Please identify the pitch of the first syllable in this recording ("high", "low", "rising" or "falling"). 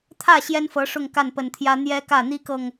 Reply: falling